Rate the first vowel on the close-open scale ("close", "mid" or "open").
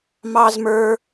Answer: open